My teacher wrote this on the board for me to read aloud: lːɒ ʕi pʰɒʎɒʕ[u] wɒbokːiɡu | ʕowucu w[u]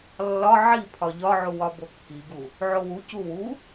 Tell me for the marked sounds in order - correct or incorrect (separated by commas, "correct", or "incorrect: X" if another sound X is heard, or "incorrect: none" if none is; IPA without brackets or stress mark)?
correct, correct